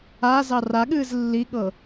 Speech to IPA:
a z ɑ r a ɠ ɨː z lː i ɠ ɤ

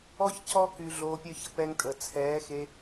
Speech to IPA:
ɔ˦ ç c ɔ˦ k y˧ ɮ oː˧ pʲ œ˦ ç ə˦ p ɛ˧ ŋ tʼ ə˨ t͡sʰ ɛː˨˦ x e˧

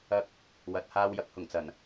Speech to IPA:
ɐ˧ k̚ | w ɐ˨˥ t̚ h aː˧ w j ɐ˨˥ k̚ h ʊ˨˩ ŋ t͡s ɐ˨˩ n

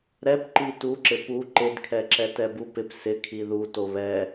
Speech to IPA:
ɾ ɛ p ǃ i t u ǁ ɪ p u ǃ ɪ d kʰ ɛ ǁ ɛ t ɛ b u p ɪ p s ɪ kʰ i ð u t o β ɛ

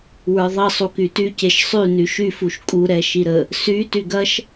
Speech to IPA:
w ə˞ ðˤ ə sˤ u k y t y c e ʃ sˤ y n y ʃ y f u ʃ kʼ u ɾ ɛ ʃ i ɾ ə | s y t y ɡ ɐ ʃ

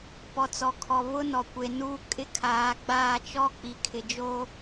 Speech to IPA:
p ɔ˨ t͡s ɔ˨ kʰ ɔ˨ β ʊ˦ n ɔ˨ kʷ e˨ n uː˦ kʼ ɪ˦ kʰ aː˨˦ ɡ͡b aː˦˨ t͡ʃ ɔ˦ k͡p i˨ kʰ ɪ˨ d͡ʒ o˦

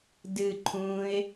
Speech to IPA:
d ɨ ǃʰ ũː ɪ̯

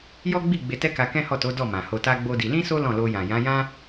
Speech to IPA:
j ɔ˦ ɡ͡b i˦˨ ɡ͡b e˧ t ɛ˦ k a˧ k ɛ̃˦ h ɔ˦˨ t o˨˦ d ɔ˦˨ m ã˨ h o˧ t a˦ ɡ͡b o˦ d i˧ l ĩ˦ s o˦ l ɔ̃˦˨ l o˧ j ã˨ j ã˨˦ j ã˦

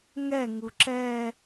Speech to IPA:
ŋ ɛ ŋ u ǁ ɛ

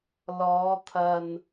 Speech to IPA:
l ɔː˨˧ t̪ʰ ɐ˨ n

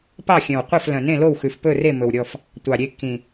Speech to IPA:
p ɑ˥˨ xʲ œ̃˨˩ w qʷ æ˥˨ f l œ̃˨˩ n ẽ˥˨ l o˥˨ w x ʉ˨˩ f p ɵ˥˨ r e˥˨ m ɵ˨˩ w ɾʲ ɔ˥˨ f | tʷ ɑ˨˩ ɾʲ e˥˨ kː ĩ˨˩

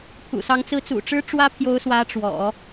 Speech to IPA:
pʰ ṵ˨˩ s ɑ˧˥ ŋ t͡s ɹ̩˧˥ t͡s ṵ˨˩ ʈ͡ʂ ɻ̩˥ ʈ͡ʂ w ä˥ pʰ j o˧˥ ʊ̯ s w ä˧˥ ʈ͡ʂ w ɔ̰˨˩˦

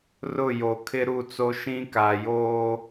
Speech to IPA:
r ʊ˦˨ j o˨ kʰ ɪ˦ ɾ u˦˨ t͡s o˦ ʃ ĩ˦ k aː˨ j oː˦

